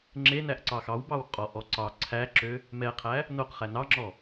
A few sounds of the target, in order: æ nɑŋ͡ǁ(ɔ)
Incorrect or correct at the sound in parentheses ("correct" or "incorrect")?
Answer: correct